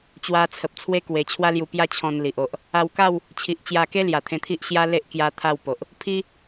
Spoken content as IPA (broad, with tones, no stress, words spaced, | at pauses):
t͡ɕwa˧t͡sʰə˨p̚t͡sʰwe˦ kwe˧ t͡ɕʰwa˦lju˧pja˦ t͡ɕʰɔ̃˧n li˨ʔ o˨ʔ | a˧wka˥˧w | t͡ɕʰi˨ʔ t͡ɕja˧ke˦ lja˨˩t̪ʰẽ˧t̪ʰi˦ʔ ɕja˦le˦ʔ kja˦t̪ʰa˥˧wpo˨ʔ | pʰi˦